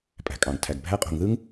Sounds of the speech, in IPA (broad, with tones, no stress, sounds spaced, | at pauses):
pʼ æ̤˩ kʼ ɑ̃˩ ɡ tʰ æ˩ ɡ bʱ æ˥ qʼ o̤˩ ŋ ð ɯ˥ ŋ